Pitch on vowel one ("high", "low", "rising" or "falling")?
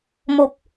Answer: low